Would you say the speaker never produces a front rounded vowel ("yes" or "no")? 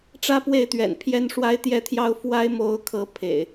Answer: yes